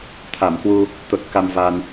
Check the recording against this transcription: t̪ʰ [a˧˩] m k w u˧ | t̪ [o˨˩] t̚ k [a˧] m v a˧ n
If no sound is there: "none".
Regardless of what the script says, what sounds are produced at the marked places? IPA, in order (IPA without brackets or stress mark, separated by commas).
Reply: a˧˩, o˨˩, a˧